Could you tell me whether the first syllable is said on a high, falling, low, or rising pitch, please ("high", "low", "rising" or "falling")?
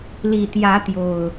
low